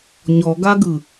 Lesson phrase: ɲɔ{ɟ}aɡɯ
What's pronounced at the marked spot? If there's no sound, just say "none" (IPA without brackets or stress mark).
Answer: ɡ